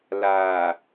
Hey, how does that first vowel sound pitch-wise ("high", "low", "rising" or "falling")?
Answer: low